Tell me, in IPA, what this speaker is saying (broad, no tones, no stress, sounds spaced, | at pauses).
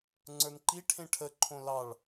ŋ͡ǀ ə˞ n ǃ i ʈʰ ẽ ʈʰ ə ǃʰ õ l ɑ ɭ